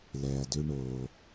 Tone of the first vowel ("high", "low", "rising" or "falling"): low